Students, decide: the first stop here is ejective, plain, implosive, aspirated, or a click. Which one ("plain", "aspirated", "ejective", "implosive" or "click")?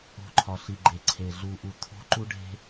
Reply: click